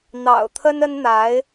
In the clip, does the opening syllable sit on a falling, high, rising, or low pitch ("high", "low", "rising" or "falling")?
low